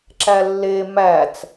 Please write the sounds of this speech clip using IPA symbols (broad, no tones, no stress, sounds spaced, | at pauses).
ǁ æ lː e m æ t͡s